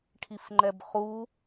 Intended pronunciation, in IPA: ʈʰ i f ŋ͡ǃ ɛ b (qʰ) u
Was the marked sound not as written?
yes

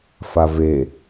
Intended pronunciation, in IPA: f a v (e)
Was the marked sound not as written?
no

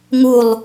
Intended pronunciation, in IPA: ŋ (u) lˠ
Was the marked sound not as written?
no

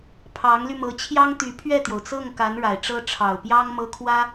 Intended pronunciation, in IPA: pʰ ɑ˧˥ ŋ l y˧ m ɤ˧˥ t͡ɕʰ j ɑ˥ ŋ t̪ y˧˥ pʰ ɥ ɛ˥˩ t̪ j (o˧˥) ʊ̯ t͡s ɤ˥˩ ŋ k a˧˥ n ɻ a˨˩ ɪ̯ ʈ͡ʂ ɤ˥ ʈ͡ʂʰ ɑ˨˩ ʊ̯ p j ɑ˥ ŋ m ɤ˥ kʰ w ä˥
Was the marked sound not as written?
yes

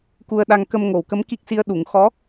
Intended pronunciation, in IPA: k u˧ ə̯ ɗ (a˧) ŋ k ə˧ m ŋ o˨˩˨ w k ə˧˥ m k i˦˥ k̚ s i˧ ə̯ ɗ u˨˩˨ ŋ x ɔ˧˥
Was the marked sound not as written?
no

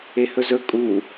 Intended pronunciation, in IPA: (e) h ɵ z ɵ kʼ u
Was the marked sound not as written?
no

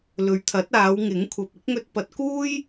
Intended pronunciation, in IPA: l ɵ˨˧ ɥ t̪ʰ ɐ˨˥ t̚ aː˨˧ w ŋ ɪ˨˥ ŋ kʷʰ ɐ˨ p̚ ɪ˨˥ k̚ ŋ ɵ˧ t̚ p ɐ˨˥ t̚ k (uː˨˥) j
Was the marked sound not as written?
yes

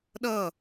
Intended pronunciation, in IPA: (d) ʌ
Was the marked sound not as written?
yes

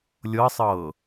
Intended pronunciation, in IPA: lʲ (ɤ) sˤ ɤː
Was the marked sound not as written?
no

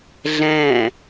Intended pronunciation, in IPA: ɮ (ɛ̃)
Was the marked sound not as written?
no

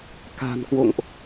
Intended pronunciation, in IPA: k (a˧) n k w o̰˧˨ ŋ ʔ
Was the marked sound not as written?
yes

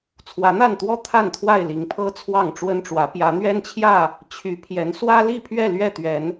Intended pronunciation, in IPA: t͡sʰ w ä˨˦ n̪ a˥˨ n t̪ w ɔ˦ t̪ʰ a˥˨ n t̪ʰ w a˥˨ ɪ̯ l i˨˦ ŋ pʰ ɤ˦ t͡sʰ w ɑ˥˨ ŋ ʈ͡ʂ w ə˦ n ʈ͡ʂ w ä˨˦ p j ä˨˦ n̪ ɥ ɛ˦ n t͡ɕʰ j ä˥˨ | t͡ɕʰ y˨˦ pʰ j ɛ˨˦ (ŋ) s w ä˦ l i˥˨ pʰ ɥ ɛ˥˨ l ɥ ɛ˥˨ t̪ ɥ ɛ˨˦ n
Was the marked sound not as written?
yes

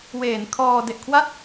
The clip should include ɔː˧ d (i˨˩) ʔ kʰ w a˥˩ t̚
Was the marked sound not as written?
yes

